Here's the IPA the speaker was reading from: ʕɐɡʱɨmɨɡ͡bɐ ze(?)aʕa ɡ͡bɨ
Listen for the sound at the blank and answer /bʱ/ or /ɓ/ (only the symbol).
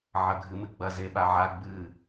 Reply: ɓ